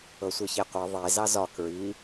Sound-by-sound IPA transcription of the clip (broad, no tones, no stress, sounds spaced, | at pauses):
ɤ sʷ ɤ ç e qʷ ɤ ðˤ e z ɑ z ɒ k ɹ i